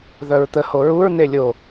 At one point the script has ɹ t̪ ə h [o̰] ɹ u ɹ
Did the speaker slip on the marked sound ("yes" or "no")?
yes